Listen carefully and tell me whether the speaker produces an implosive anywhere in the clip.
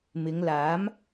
no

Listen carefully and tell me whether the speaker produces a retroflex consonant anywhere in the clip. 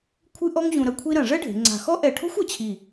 yes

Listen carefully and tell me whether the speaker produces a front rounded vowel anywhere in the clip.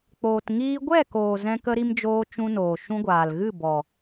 no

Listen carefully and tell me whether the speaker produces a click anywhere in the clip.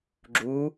yes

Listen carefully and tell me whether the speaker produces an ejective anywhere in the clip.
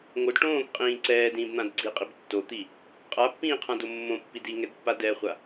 yes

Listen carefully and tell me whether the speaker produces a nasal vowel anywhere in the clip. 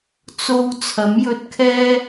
no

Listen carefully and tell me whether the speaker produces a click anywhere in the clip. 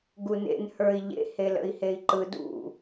yes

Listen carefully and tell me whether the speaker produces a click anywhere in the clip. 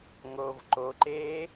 yes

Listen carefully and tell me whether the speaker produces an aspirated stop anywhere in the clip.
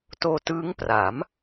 no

